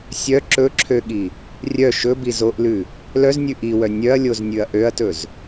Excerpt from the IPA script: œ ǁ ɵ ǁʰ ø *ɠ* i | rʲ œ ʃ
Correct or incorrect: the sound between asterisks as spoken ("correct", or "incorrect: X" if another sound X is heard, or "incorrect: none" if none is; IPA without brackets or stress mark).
correct